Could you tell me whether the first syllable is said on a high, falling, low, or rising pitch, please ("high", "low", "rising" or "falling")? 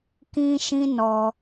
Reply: high